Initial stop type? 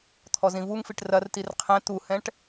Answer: aspirated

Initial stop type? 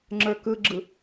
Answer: click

